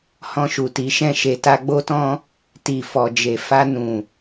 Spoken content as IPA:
h ɔ̃˧ ʃ u˨ t i˨˦ ʃ ɛ̃˦˨ ʃ e˨ t a˧ ɡ͡b o˦ t ɔ̃˦ | t i˨ f ɔ˨ d͡ʒ e˨ f a˧ n ũ˨

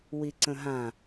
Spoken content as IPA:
w i ǀ ə̃ ɦ ã

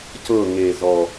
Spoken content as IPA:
c ɤ˦˨ ŋ e˨˩ z ɔ˨˩

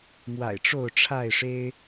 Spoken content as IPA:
m w a̰˨˩ ɪ̯ ʈ͡ʂ o˥˨ ʊ̯ ʈ͡ʂʰ a˥˨ ɪ̯ ʂ e˦ ɪ̯

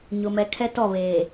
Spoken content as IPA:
ɲ ʊ˨ m ɛ˨ kʰ ɛ˦ t ɔ˦˨ β eː˨

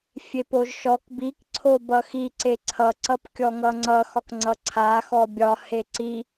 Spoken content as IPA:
fʲ e p o ʒ ʃ ɔ k b i k ǀʰ o b ʌ x i ǀ e ǀʰ ʌ ǀ ʌ p kʲ ɔ ŋ ʌ ŋ͡ǀ ʌ x ɒ k ŋ͡ǀ ʌ ǀʰ a x ɔ bʲ ɒ h e ǀ i

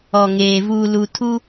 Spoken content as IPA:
ɔ˨ ŋ eː˨ v uː˨ l u˨ tʰ u˦

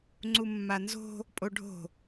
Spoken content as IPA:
ŋ͡ǀ u mː a n z o̤ | pʼ o ɖʱ o̤

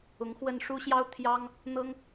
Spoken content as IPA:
ʊ˧˥ ŋ x w ə˥˩ n ʂ u˥ ɕ j ɑ˥ ʊ̯ t̪ʰ j ɑ˥ ŋ | n̪ ɤ˥ ŋ

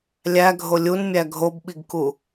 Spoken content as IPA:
lʲ æ ɡʱ o lʲ u n mʲ æ ɡʱ o b ɓ i ɡ k u

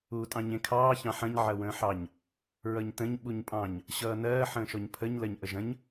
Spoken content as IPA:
uː tʼ ɑ̃ ɲ ẽ kʰ ɑː ç ɑ̃ ħ ɐ̃ ɲ ʕ ɐ w ə̃ː ħ ɑ ɲ | ɹ ʌ ɲ t ə̃ ɲ ɓ u ɲ pʼ ɑ̃ ɲ | ɕ ʌː n ɜː ħ ə̃ː ʃ ɔ ɲ pʰ ə ɲ l ɜ ɲ ʔ ə ʒ ɐ̃ ɲ

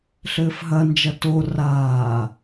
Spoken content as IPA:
ɬ ɘː f ɦ ɐ n d͡ʒ ɐ t o r aː

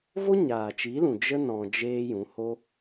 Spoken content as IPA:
v o˦ ɲ aː˨ t͡ʃ i˨˦ l ũ˨ d͡ʒ ə˦ n ɔ̃˧ d͡ʒ eː˦ j ũ˨˦ h o˦

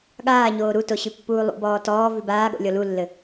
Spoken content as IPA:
ɠ aː ɲ oː ɾ u t o ɕ ʉ pː uː lˠ ṵ b ɔː t ɔː v ʉ b aː ɠ o̰ lʲ ɔ l u lː ɘ

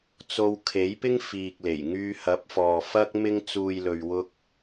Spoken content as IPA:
t͡s o˧ w kʰ e˨˥ j p ɪ˥ ŋ f iː˨ k̚ l e˨˩ j ŋ yː˧ h ɐ˨˥ p̚ f ɔː˨ f ɐ˥ k̚ m ɪ˧ ŋ t͡s uː˨ j l ɵ˨ ɥ w ʊ˧ k̚

